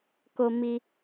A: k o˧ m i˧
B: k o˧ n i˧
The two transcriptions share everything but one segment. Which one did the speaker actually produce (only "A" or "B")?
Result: A